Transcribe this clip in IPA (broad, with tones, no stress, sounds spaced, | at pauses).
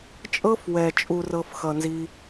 t͡ʃʼ ɤ˦ f w ɛ˨ t͡ʃʼ u˨ r ɤ˨ f x ʌ˨ n z i˧